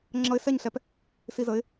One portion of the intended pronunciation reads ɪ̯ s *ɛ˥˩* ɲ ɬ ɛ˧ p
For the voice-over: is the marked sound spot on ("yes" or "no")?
yes